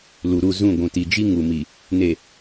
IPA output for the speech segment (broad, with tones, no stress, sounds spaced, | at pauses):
l u˨ ɾ u˦˨ z ũ˦˨ ɡʷ ũ˨ t i˨ d͡ʒ i˦ ŋ u˨ m i˨ | n e˨